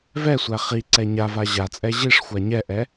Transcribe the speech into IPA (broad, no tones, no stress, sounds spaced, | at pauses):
v ɛ sʷ æ χ i ǀ ɛ ɲ a v a ʑ a t͡sʼ ɛ ʑ i ʂ xʷ a ɲ ɛ ʔ ɛ